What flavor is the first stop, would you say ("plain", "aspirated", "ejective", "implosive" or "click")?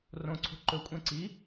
click